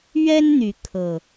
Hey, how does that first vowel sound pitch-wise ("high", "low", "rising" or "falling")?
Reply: high